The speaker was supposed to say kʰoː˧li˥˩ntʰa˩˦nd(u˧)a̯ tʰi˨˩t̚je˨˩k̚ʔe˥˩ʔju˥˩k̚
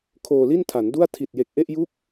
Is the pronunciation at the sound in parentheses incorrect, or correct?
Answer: incorrect